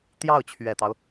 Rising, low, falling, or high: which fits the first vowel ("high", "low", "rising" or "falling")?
falling